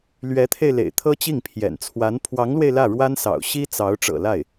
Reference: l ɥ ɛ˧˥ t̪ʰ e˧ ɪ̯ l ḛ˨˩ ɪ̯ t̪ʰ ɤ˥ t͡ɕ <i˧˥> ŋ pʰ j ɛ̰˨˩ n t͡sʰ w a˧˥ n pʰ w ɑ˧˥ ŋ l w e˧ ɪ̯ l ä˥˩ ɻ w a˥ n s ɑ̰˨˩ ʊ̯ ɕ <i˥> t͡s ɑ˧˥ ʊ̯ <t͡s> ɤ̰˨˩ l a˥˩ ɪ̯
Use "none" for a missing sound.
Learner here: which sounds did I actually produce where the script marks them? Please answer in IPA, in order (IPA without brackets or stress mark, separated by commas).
i˥˩, i˥, ʈ͡ʂ